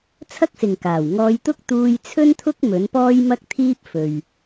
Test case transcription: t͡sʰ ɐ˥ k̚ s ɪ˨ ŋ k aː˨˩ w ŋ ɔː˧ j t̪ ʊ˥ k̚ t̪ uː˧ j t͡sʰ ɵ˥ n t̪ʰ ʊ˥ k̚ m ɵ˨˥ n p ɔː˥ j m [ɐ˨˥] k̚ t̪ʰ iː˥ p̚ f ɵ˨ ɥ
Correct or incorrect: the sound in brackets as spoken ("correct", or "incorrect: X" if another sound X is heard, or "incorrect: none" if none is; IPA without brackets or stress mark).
incorrect: ɐ˥